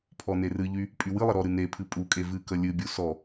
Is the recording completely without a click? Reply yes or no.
yes